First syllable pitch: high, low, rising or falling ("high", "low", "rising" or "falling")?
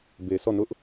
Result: low